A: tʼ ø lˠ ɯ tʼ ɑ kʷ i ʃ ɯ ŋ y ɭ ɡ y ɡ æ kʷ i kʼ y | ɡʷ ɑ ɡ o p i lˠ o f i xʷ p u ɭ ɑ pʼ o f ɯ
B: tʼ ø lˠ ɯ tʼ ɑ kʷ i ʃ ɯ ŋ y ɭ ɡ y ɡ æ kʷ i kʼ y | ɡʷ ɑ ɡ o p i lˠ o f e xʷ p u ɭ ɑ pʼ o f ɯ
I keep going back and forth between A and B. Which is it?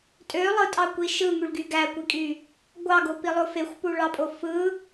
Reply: B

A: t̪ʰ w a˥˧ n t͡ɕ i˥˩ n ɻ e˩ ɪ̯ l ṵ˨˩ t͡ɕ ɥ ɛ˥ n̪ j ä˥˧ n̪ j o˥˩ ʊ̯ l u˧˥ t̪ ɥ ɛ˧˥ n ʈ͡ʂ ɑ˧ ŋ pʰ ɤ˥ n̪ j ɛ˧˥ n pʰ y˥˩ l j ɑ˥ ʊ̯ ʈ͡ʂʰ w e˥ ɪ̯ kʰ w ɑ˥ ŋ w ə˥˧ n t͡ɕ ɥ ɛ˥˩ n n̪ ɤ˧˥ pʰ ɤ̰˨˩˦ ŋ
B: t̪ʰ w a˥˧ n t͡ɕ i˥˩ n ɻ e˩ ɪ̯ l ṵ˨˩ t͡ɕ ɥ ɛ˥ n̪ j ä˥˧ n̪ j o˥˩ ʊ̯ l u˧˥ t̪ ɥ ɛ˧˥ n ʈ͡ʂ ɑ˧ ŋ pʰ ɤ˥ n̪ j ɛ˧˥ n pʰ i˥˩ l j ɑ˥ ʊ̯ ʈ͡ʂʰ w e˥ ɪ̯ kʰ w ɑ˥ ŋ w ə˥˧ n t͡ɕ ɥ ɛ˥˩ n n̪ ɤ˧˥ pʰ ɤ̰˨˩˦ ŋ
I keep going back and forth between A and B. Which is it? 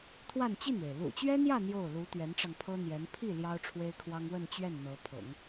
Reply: B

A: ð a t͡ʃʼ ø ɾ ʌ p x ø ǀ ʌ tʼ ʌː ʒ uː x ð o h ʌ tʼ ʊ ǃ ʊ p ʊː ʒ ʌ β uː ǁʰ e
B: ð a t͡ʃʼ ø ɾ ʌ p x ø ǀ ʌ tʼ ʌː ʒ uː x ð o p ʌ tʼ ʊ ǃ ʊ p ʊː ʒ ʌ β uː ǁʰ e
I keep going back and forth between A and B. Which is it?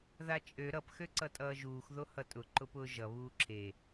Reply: A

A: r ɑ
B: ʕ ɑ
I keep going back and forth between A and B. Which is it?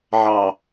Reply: B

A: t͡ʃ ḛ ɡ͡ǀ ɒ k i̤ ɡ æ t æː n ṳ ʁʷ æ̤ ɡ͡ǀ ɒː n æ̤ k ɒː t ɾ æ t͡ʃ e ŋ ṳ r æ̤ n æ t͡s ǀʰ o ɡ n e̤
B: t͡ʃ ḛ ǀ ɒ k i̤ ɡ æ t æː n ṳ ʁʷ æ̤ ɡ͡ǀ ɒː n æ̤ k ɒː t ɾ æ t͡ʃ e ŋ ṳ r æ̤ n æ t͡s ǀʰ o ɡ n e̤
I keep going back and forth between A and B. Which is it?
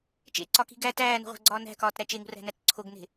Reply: B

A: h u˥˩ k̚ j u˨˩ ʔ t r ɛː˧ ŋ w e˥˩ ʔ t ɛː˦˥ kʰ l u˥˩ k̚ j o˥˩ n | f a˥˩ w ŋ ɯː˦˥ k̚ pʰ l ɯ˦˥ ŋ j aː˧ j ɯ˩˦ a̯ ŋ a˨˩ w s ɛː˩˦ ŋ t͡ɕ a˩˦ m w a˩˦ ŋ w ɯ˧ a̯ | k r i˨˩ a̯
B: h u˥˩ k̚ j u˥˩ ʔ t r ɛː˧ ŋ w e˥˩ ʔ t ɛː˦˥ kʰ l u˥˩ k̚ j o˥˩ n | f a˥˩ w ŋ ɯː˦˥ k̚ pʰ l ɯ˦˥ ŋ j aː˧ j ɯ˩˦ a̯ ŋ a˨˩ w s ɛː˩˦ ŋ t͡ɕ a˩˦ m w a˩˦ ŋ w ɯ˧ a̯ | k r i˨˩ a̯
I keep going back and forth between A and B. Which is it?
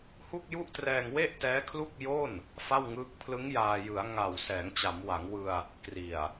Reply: B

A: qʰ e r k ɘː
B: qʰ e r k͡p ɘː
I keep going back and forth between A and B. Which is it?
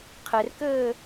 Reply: A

